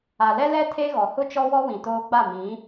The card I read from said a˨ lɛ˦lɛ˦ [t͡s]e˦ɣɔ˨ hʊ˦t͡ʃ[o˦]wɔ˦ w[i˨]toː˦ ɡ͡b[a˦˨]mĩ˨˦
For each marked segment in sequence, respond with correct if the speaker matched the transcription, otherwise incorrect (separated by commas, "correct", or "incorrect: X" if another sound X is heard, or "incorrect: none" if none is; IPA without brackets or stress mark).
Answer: incorrect: tʰ, incorrect: ɔ˦, incorrect: ĩ˨, correct